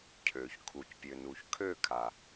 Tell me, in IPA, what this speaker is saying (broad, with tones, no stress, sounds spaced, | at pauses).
cʰ ø˩ ç kʰ u˩ c pʲ ø˩ n u˩ ç kʰ ø˥˩ kʰ a˩